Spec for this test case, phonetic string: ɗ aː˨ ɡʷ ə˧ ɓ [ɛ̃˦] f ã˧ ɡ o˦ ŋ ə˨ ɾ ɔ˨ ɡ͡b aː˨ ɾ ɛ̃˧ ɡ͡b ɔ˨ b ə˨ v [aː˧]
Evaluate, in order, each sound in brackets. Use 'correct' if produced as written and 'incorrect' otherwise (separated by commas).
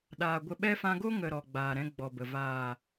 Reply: incorrect, incorrect